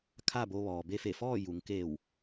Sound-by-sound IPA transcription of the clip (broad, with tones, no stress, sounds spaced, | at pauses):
kʰ a˥˨ b o˧ ʋ ɔː˩ b e˧ f e˧˩ f ɔː˥˨ j u˩˧ ŋ k eː˧˩ w